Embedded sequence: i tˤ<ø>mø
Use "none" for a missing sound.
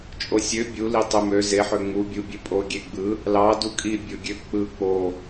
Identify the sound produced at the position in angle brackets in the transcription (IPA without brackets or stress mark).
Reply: ø